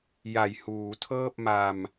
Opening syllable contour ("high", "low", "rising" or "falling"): low